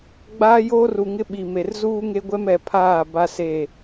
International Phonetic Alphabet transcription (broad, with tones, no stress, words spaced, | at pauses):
ɡ͡baː˦joː˦ru˨ŋɪ˦ ɓi˨me˨r zuː˦ŋe˦ɡʷɛ˦mɛ˨ pʰaː˦˨ ba˦se˦˨